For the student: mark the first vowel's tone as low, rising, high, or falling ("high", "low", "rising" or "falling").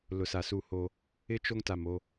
low